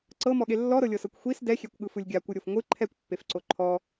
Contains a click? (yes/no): yes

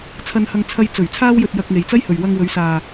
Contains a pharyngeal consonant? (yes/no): no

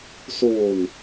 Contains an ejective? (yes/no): no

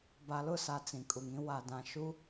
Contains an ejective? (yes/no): yes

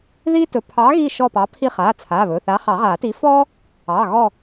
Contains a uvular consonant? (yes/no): yes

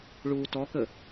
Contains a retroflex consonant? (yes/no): yes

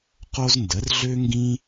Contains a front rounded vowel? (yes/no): yes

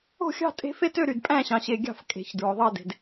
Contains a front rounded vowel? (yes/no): yes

